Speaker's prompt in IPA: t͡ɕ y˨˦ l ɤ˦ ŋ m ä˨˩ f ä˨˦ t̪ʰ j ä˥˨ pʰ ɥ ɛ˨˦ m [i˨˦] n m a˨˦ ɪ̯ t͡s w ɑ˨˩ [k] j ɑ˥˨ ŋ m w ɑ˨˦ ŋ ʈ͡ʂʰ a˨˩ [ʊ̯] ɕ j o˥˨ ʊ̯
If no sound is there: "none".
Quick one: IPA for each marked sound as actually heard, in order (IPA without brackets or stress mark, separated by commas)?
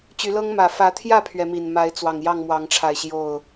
i˨˩, ŋ, ɪ̯